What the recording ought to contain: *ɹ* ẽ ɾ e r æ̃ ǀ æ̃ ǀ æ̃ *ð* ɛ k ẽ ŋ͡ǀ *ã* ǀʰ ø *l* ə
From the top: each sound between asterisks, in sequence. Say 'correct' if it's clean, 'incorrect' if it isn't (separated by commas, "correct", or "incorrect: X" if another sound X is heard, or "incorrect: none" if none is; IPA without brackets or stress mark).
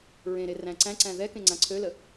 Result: correct, correct, correct, correct